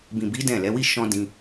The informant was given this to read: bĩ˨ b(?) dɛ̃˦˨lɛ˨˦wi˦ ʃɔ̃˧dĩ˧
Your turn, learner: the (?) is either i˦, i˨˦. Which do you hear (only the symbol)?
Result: i˨˦